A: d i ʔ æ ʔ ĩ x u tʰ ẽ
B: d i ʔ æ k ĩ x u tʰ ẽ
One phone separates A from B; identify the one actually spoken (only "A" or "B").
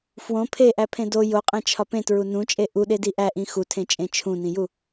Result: A